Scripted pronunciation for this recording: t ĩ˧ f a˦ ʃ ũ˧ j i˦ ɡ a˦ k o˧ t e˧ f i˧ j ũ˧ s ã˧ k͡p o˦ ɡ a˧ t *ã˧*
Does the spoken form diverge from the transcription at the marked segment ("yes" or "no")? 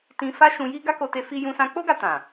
yes